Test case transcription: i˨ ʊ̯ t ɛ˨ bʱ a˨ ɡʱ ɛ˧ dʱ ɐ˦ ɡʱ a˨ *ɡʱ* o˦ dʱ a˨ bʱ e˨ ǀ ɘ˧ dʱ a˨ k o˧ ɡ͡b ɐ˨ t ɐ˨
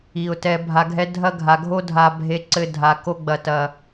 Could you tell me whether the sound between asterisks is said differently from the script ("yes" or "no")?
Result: no